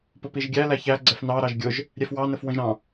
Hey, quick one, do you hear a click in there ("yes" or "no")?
yes